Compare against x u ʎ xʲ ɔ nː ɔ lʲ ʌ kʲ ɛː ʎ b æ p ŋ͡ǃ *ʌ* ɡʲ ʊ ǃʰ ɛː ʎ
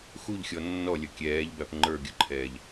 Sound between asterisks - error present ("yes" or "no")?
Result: yes